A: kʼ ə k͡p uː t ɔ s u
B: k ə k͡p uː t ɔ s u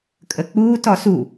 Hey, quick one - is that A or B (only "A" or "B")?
A